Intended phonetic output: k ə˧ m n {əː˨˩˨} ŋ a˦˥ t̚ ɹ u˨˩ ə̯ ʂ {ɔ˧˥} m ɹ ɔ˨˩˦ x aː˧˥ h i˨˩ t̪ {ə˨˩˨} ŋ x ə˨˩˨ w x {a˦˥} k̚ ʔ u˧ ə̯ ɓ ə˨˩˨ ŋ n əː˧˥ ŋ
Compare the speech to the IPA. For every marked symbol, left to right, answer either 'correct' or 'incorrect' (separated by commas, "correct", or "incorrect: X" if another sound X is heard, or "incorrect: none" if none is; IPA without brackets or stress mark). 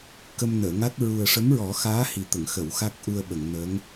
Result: correct, incorrect: ə˧˥, correct, correct